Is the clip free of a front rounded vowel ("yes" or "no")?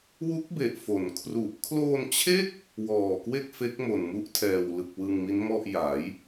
yes